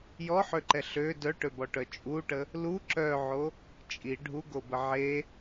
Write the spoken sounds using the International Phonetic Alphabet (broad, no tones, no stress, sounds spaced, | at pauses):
j ɔ ħ ø ǃ ɛ ɬ ø d œ ʈ ø b ɔ ʈ œ t͡ʃʼ u ʈ ə | l u ǁ œ ʕ o | t͡ʃʼ i ɖʱ u ɡ o b ə ʕ e